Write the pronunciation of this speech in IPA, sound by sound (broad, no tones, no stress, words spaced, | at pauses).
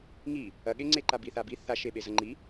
ŋi | ɐɠeŋ͡ǀeǃa biθabi θaʃe ɓezɐŋ͡ǃi